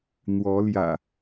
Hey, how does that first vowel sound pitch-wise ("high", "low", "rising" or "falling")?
rising